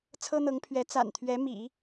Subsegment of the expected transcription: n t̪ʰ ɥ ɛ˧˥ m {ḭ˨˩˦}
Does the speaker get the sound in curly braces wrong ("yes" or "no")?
no